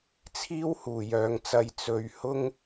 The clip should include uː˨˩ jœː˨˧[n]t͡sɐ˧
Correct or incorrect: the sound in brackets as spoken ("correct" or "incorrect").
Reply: incorrect